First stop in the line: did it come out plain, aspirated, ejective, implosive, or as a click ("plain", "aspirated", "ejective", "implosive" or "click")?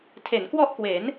aspirated